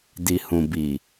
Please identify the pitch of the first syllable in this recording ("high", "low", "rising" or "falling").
low